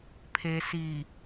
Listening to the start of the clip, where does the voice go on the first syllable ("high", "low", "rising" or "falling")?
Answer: low